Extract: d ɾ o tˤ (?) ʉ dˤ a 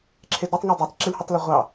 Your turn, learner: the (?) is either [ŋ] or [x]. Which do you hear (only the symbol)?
ŋ